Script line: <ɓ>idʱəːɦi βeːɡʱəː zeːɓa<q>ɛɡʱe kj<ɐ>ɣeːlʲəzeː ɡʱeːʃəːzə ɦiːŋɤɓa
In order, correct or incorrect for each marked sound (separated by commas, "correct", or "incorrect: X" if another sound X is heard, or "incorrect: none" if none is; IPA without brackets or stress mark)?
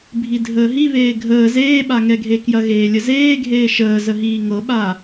incorrect: bʱ, incorrect: ŋ, correct